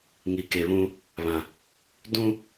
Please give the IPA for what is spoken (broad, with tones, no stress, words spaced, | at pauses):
ŋi˨ke˨βũ˦ | βã˨ | dũ˦